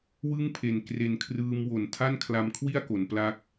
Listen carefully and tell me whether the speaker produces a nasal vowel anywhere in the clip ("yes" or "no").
no